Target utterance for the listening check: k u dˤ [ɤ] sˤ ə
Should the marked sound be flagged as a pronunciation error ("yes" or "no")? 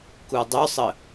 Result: yes